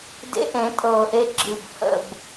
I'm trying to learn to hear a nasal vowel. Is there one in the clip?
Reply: yes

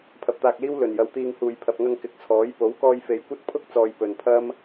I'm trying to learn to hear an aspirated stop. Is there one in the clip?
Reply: yes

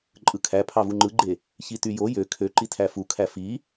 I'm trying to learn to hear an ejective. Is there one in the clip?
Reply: yes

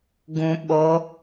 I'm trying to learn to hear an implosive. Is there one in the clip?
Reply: yes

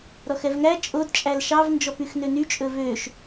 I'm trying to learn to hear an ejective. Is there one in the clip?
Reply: yes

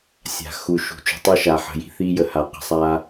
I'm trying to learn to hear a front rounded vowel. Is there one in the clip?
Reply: no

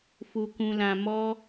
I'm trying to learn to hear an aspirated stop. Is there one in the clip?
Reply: no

